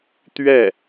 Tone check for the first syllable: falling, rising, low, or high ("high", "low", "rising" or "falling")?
falling